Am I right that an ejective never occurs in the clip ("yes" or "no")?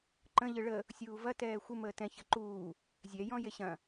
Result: yes